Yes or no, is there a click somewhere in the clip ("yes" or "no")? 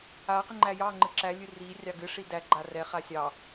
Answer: yes